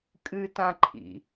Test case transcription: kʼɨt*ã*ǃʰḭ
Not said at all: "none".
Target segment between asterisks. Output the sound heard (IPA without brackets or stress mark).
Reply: ã